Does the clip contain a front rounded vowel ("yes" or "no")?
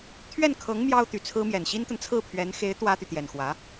yes